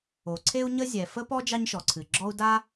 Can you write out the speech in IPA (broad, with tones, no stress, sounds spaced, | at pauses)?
o˩ ǀʰ e˥ u̯ ɲ ə˥ zʲ ɛ˩ f ə˥ p ɔ˥ d͡ʒ ɑ˥ ɲ ʃ ɔ˩ ǀʰ ɨ˩ ɡ͡ǁ ɔ˥ u̯ d a˥